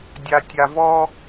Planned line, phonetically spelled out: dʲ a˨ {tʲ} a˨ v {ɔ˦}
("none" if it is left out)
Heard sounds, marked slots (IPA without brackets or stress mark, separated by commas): tʲ, ɔ˦